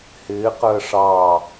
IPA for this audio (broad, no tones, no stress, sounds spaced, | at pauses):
h ɪː q əː ʂ ɑ